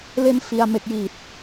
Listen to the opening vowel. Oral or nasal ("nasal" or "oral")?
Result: oral